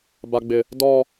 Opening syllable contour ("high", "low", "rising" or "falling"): high